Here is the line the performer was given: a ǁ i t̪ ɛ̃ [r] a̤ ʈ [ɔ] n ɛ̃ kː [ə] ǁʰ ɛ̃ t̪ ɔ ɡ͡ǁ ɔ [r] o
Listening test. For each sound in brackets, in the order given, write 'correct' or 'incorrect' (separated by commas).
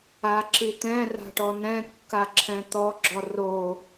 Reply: correct, correct, incorrect, correct